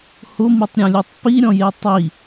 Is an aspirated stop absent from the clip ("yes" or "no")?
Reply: yes